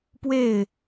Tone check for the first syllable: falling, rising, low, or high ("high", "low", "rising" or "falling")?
falling